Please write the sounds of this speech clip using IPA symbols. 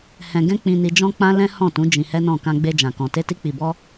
h ɛ̃˧ ɡ ɛ̃˦ k͡p ĩ˧ n i˧ d͡ʒ ɔ̃˦ k͡p ã˦ l ɛ̃˦ h ɔ̃˦˨ t ũ˨˦ d͡ʒ ĩ˧ h ɛ˦ n ɔ̃˦˨ k ã˧ ɡ͡b e˧ d͡ʒ ã˨ k ɔ̃˨ t e˧ t i˧ k͡p i˨ b ɔ˧

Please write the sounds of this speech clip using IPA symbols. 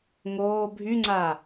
ŋ oː bʱ y ŋ͡ǀ a

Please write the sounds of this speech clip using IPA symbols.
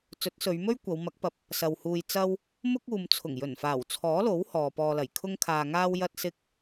t͡s ɵ˨˥ t̚ s ɵ˨˧ ɥ m ɵ˥ ɥ kʷ ɐ˨˧ w m ɐ˨˥ k̚ p ɐ˨ p̚ | s ɐ˨ w h uː˧ j t͡s ɐ˥ w | m ʊ˥ k̚ uː˨ m t͡sʰ ʊ˨˩ ŋ j ɵ˨˩ n f aː˨˩ w t͡sʰ ɔː˨˥ l o˨˥ w h ɔː˨ p ɔː˨ l ɐ˨˩ j kʰ ʊ˥ ŋ kʰ aː˧ ŋ aː˥ w j ɐ˥ t̚ s ɪ˥ k̚

